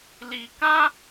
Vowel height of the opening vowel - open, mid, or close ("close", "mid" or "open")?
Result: close